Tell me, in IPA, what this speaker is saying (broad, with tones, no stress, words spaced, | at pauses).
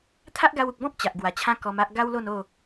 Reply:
t̪ʰa˦ʔɡa˧wu˨k̚bɔ̃˦p̚ t͡ɕa˨ʔɡwa˨˩t͡ɕʰã˦ kɔ˧ma˦ʔ ɡa˦wlo˥˧no˥˧